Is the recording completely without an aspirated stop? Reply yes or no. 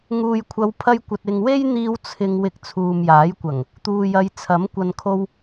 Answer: no